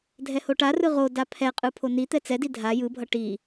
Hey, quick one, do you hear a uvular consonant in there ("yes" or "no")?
yes